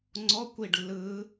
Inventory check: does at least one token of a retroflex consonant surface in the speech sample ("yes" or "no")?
yes